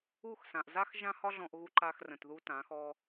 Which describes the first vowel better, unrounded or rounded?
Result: rounded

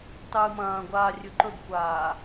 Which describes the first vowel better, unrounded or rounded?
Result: unrounded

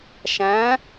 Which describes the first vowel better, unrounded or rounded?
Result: unrounded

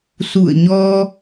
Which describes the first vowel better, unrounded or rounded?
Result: rounded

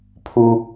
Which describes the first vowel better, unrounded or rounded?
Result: rounded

